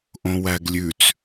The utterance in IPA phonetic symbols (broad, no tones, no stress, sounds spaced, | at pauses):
ʔ õ w æ ɡ lʲ ʉ t͡s